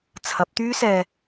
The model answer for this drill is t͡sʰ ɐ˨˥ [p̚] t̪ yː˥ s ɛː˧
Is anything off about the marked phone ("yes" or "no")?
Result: no